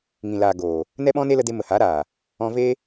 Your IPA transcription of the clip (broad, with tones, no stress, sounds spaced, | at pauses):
ŋ ĩ˨ l aː˨ ɡ oː˨ | n ɛ˦ ɓ ɔ̃˦ n e˦ l ə˧ d e˧ m ə˨ h a˨˦ ɾ aː˨ | ɔ̃˧ v e˦